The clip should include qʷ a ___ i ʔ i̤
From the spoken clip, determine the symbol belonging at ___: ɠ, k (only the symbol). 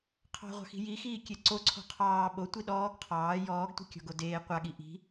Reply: ɠ